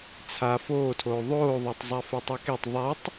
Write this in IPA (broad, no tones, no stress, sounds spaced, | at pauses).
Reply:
t͡sʰ a f oː tʰ oː ðˤ oː ðˤ əː tˤ zˤ a f e tˤ i k e tˤ ðˤ a tˤ